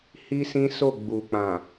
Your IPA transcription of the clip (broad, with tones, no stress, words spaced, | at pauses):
hi˦sĩ˦ so˦˨ɡ͡bu˨k͡pã˨